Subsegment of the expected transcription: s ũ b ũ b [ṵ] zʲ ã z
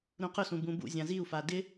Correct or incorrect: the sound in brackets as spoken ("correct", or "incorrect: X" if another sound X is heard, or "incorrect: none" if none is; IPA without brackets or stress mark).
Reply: correct